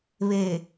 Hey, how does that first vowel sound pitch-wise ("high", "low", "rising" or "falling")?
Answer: low